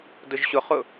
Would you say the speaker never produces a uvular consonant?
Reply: no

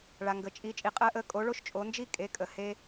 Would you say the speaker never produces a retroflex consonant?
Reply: no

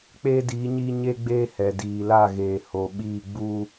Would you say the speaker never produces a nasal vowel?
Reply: yes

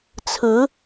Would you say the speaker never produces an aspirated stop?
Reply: no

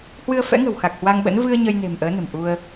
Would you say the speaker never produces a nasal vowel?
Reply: yes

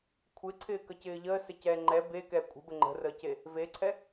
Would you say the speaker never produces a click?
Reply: no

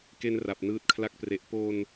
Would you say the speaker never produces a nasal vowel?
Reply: yes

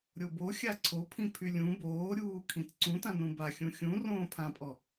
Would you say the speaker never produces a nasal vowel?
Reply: no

